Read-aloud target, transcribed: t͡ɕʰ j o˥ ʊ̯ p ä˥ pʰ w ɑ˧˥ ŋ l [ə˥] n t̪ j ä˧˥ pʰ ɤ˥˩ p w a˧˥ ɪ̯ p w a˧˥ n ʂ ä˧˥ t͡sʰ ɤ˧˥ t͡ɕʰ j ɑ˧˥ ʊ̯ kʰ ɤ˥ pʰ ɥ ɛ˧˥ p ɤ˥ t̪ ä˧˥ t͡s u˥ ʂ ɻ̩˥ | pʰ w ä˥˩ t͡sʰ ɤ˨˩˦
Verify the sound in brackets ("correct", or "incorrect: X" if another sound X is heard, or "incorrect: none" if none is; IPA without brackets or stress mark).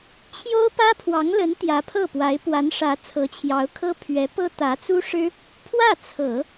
incorrect: ə˧˥